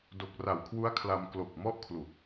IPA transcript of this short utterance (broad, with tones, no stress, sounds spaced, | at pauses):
d o˨˩ k̚ r a˨˩ w kʰ w u˦˥ a̯ kʰ l a˧ m k l o˨˩ k̚ m ɔ˥˩ ʔ kʰ l u˨˩ k̚